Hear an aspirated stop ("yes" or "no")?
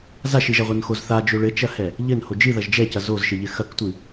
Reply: no